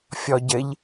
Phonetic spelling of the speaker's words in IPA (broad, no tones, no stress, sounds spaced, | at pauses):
fʲ ɔ ɟ ɘ ʎ